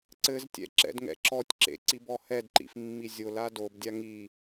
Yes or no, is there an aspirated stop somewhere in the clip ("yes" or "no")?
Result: no